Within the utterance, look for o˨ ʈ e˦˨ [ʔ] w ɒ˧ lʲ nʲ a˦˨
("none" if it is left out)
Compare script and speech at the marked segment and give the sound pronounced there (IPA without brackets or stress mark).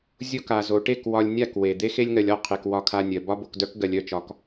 k